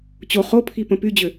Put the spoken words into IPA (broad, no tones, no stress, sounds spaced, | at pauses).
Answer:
t͡ɕ o χ o pʰ i p ə̃ p y d͡ʑ ø